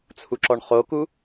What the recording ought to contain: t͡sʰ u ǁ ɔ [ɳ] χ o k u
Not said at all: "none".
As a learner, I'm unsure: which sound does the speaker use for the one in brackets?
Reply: ɳ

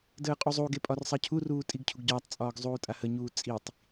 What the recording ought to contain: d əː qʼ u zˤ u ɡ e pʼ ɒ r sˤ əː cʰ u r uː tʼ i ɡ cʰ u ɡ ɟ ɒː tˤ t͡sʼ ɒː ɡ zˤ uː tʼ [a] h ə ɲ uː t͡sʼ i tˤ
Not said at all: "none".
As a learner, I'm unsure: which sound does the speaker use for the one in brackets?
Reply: a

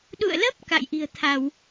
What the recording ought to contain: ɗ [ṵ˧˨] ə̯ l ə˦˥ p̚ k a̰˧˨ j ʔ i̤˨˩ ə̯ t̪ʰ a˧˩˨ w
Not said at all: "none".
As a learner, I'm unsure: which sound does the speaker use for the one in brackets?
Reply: ṵ˧˨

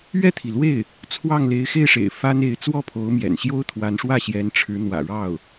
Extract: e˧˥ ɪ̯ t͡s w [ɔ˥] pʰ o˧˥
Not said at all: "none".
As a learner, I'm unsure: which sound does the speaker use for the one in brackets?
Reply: ɔ˥˩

